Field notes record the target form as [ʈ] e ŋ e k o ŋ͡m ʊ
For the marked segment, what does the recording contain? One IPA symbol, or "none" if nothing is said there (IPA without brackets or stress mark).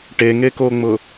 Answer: ʈ